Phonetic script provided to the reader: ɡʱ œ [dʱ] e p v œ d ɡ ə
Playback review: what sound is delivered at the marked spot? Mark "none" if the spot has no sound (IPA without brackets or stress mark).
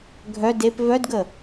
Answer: d